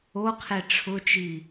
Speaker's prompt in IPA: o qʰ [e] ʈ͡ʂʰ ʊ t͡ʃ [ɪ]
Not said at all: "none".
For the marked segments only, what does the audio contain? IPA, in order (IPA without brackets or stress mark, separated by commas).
e, i